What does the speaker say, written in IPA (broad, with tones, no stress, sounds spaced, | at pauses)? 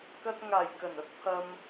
k ɐ˥ t̚ ŋ aː˨˩ j k ɐ˨˩ n ɐ˥ t̚ pʰ ɐ˧ m